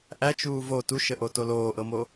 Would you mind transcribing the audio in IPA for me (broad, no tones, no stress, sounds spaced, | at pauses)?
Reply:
ʔ æ t͡ʃ uː v o t u ʃ ə ʔ o t o l oː ʔ ɤ m oː